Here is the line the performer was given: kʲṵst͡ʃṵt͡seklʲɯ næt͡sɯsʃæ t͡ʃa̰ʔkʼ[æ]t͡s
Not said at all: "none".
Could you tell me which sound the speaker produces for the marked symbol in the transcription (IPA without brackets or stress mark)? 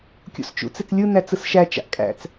æ̰